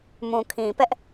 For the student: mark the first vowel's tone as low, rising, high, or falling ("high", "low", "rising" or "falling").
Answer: low